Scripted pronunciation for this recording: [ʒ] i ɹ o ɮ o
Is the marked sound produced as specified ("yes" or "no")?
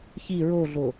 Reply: no